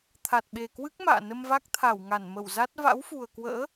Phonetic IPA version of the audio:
t̪ʰ a˨˩ t̚ ɓ e˨˩ k w ɨ˦˥ k̚ m a̰ː˧˨ n ə˧ m v a˦˥ k̚ t̪ʰ a˧˩ w ŋ a˧˩ n m ə˧˩ w z a˦˥ t̚ v a̰˧˥ w f u˨˩ ə̯ k w ə̰ː˧˥

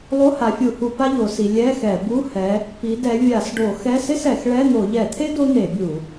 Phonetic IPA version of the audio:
lˠ o˧˥˧ h a˨˦ fʲ u˧˩˧ h u˧˩˧ p a˥ ʎ o˨˦ s i˨˦ lʲ ɛ˧˥˧ x ɛ˧˩˧ b u˧˥˧ h ɛ˨˦ | p i˨˦ d ɛ˨˦ vʲ a˧˩˧ s ɖ o˧˩˧ x ɛ˧˥˧ s ɪ˥ s ɛ˧˩˧ x ɭ ɛ˧˥˧ n̪ o˧˩˧ ʎ ɛ˧˩˧ t̪ʰ e˥ d o˥ n̪ e˧˩˧ bʲ u˧˩˧

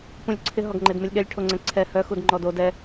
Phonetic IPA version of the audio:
p ũ lʲ ǀʰ ɪ ɦ ɔ ɡ ŋ͡ǃ e d m ɘ lʲ ɠ ɛ lʲ ʈʰ o ŋ͡ǀ ɛ̃ ǀʰ ɛ h œ x u d ŋ͡ǃ ɔ d o d ɛ

